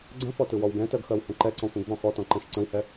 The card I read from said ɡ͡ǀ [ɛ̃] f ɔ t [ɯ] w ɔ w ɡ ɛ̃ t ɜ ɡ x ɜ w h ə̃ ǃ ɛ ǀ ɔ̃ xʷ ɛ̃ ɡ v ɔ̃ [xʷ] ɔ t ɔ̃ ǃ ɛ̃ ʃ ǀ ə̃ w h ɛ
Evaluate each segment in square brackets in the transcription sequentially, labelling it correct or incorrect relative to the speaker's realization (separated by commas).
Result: incorrect, correct, incorrect